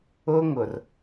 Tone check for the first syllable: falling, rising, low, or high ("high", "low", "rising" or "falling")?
high